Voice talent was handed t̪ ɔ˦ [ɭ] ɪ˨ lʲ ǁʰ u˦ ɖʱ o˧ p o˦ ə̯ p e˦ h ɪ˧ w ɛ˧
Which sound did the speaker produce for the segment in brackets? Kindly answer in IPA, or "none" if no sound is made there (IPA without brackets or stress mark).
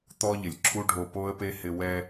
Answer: ʎ